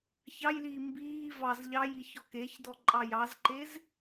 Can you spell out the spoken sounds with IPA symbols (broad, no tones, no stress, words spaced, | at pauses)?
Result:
çɑjliː mbiː vɑz ʎɑjiç ɔkeçdɔ ǃʼɑjɑzǃez